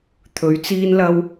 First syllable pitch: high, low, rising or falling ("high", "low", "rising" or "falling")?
rising